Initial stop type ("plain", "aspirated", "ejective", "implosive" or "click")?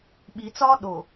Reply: implosive